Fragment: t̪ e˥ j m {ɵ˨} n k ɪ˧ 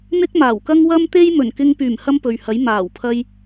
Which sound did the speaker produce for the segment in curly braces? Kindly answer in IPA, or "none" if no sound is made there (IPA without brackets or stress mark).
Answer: ɵ˨˩